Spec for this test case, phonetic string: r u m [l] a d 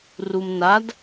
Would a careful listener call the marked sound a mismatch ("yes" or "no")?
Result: yes